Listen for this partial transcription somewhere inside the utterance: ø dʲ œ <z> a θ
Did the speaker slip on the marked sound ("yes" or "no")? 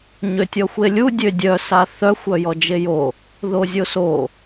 yes